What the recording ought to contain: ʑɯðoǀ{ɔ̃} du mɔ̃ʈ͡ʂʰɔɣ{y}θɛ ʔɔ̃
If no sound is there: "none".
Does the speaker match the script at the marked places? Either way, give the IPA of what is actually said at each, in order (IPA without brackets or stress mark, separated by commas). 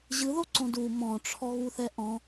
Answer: õ, u